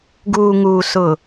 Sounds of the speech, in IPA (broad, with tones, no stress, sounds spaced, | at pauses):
ɡ uː˨ ŋ uː˨ s ʊ˨